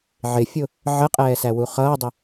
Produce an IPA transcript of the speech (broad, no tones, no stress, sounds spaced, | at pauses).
ʕ ɪ fʲ ʊ | ʕ ə qʼ ɛː s æ w u χ ʌː dˤ ə